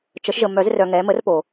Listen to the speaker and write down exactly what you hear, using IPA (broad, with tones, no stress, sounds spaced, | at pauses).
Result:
t͡ʃ ə˨˩˦ ʃ ʒ ə˨ m œ˨˩˦ z r œ˨ ŋ ɛ˨˥ m ə˨˥ r p o˨